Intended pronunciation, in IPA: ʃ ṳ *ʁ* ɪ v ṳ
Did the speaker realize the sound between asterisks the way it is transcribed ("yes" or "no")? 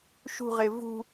yes